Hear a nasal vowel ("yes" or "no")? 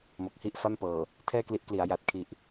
no